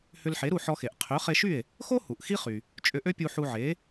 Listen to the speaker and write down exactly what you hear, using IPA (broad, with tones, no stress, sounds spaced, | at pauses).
h ʏ˧ l ħ e˩˥ ɾ u˥˩ ħ ɔ˧ x e˩ ʔ qʰ ø˩˥ χ e˧ ʃ y˥˩ e̯ | x o˥ h u˩ ʔ x i˥ χ y˩ | t͡ʃʼ ʏ˧ ʔ ø˥ pʲ u˧ ħ u˧ ʕ e˩˥